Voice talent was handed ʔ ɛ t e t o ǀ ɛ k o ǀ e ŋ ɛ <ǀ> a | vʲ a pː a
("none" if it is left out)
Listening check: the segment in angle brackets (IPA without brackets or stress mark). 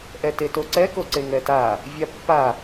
t